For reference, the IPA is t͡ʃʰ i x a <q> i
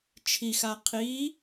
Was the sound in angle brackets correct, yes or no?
no